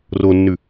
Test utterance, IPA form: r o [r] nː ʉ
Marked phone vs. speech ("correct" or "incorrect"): incorrect